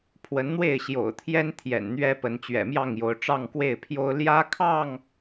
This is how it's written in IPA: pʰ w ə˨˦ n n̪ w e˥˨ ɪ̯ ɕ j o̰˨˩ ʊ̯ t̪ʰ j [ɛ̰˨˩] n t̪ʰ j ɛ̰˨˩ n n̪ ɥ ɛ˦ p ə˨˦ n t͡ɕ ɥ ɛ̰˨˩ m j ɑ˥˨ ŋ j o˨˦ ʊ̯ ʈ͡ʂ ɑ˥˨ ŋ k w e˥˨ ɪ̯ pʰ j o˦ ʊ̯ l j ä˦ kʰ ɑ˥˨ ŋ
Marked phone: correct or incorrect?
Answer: incorrect